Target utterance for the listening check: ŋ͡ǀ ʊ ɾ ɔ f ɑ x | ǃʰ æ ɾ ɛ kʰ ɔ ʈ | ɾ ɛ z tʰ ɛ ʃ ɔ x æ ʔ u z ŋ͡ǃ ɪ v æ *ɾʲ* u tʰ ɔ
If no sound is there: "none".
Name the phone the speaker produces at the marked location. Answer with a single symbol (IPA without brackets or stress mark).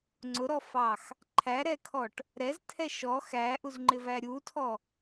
ɾʲ